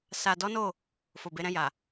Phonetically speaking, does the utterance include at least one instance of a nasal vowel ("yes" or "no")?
yes